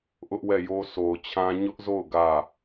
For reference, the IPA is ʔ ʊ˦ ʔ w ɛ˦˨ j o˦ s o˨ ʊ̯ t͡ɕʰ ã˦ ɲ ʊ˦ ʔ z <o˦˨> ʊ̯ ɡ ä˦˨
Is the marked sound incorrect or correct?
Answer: correct